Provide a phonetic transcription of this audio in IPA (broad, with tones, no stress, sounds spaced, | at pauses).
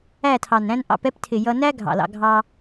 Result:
æ˦˨ tʰ ɑ˨ n ɾ æ̃˦ n ʔ ɑ̰˧ p ɛ˦ p tʰ ɪ˨ j ʌ˧ n æ˦ ɡʱ ɑ̰˨ l ɑ̰˧ ɡʱ ɑ˦